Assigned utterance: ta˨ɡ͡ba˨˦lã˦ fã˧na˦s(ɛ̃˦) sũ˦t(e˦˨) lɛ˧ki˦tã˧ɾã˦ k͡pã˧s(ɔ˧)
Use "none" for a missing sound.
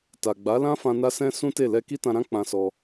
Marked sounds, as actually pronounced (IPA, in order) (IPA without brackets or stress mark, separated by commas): ɛ̃˦, e˦˨, ɔ˧